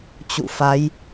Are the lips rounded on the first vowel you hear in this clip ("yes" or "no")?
yes